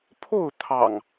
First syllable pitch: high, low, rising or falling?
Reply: falling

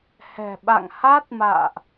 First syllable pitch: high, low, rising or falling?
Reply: low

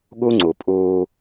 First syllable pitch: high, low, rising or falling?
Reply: high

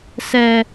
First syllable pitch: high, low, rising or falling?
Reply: low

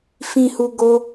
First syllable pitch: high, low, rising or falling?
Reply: low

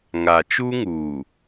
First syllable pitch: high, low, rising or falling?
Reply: low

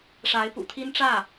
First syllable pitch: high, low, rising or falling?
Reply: rising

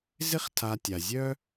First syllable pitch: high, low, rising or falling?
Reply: high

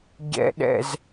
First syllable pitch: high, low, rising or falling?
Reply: low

